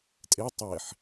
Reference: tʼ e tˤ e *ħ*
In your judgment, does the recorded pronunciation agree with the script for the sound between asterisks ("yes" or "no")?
yes